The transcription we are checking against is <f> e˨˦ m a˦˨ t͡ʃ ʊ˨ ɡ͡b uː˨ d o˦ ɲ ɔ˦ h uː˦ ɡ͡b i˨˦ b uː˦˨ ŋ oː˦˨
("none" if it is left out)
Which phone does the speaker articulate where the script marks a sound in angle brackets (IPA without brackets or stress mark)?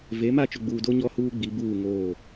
v